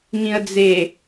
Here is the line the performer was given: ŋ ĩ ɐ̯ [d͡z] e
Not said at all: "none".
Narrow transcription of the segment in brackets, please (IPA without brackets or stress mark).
d͡z